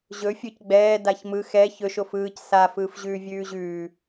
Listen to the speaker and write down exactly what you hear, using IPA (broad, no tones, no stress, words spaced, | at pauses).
ʑɵ fʲɵc ɡ͡bɛː daçmɯx ɛ çɵʃ ofɯːc sa fɯːfʑʉːvʲʉːʑʉː